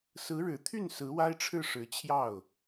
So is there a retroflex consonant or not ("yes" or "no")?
yes